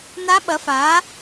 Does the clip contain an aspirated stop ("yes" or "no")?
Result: no